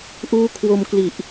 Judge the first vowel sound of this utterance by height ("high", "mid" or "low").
high